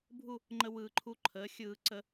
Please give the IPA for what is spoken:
bʱ u˥˧ | ŋ͡ǃ ə˧ w ɯː˨˩ ǃʰ u˧ ǃʰ əː˩˥ xʲ ɯː˧˩˧ ǀ ə˧˩˧

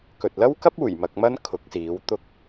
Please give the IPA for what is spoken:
k ɵ˨ t̚ l ɐ˥ w k ɐ˥ p̚ uː˨˩ j m ɐ˧ k̚ m ɐ˥ n kʰ ʊ˨˥ k̚ s iː˨˥ w t̪ ʊ˥ k̚

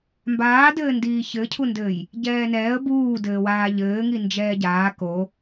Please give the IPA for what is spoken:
m b aː d ɘː n d iː ç ɘ cʰ u n d ɘː j | ɟ ɛː n ɛː ə̯ b uː d ɘː w aː ʎ ɘː ŋ i n d͡ʒ ɛː ɟ aː k o

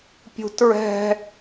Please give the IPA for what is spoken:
pʲ ṳ t ɹ ɛ̤

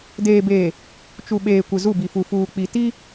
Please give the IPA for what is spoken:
d eː˨ b eː˨ | t͡ʃ u˨ ɓ eː˨ kʷ ɪ˨ z u˦˨ b i˨ f u˨ f uː˨ k͡p i˨ t i˦

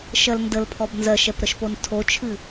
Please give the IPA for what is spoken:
ʃ ɜ l n d ə l pʰ ɔ b n z ɜ ʃ ɛ p ɾ ə ʃ p o n tʰ o t͡ʃʰ ɨ

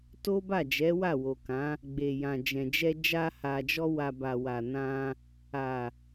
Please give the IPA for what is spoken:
t o˦ b a˦˨ d͡ʒ ɛ˨˦ w a˦˨ w o˨ k ã˨˦ | ɡ͡b e˨ j ã˨ d͡ʒ ɛ̃˨ d͡ʒ ɛ˧ d͡ʒ a˧ h a˨ d͡ʒ ɔ˧ w a˨ b a˨ w a˨ n ã˧ | a˨

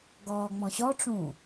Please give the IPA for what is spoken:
ɡ ɔː ŋ͡m ɔ̃ ɕ ɔ ʈ͡ʂ ũː

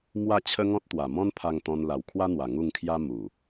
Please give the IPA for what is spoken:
m w a˥˧ t͡ɕʰ ə˦ ŋ ɔ̃˦ t̚ t̪ w a˨˩ m ɔ̃˦ n pʰ a˧ ŋ t̪ ɔ̃˧ n l a˨˩ w kʰ w a˦ n̪ w a˨˩ ŋ u˥˧ ŋ kʰ j a˦ m u˨˩

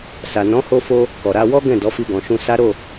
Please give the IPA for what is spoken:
s a˨ n ɔ̃˨˦ h o˧ f o˧ | k ɔ˨ ɾ a˧ w ɔ˦ ɡ ɛ̃˦˨ d ɔ˨˦ f i˧ ɡ ɔ̃˨ ʃ ũ˧ s a˦ ɾ o˦˨

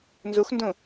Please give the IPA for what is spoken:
n z u x n d ũ

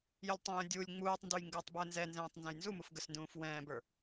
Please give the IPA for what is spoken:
j ə lʲ tˤ ɛ̃ j ə̃ dʲ u lʲ ŋ͡m uː tˤ n d u j ŋ ɡ əː tˤ b əː n z ɛ n z ɛ̃ː tˤ n z ɛ̃ j n z u m u f ɡ ə s n d ũː f w ɛ̃ː b ə˞

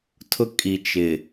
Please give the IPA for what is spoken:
tʰ ʊ˦ kʼ i˨ t͡ʃ ɪ˨

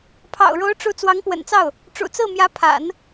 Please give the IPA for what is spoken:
pʰ ɑ̰˨˩ ʊ̯ ɻ o˧˥ ʊ̯ ʈ͡ʂ u˧˥ t͡s w ɑ˧˥ ŋ p w ə̰˨˩ n t͡s ɑ˥˩ ʊ̯ | ʈ͡ʂ ṵ˨˩ t͡s ɹ̩˥˩ m j ä˧˥ pʰ a̰˨˩˦ n

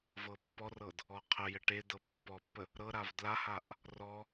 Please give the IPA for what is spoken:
v ɤ pː ɔ r ɤ d | ɔ qʰ ə j ə ʈ e d ɤ pː ɔ pː ə | ɾ ɤ ɾ a v d l a h a ʔ | r ɔ

